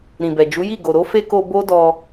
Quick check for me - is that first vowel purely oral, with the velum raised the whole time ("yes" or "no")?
no